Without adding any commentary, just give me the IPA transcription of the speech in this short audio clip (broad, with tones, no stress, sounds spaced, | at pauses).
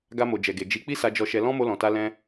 ɡ a˧ m o˨ d͡ʒ ɛ˨ ɡ e˨ d͡ʒ i˨˦ k͡p i˦ s a˧ d͡ʒ ɔ˧ ʃ ɛ˧ l ɔ̃˦ m o˧ l ɔ̃˨ t a˧ l ɛ̃˧